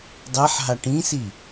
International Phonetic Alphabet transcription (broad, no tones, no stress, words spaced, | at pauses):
dˤɛħɦa ʈĩsi